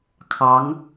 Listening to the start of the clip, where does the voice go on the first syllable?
rising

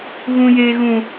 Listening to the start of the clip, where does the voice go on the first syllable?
high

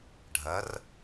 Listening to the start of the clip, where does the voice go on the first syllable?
rising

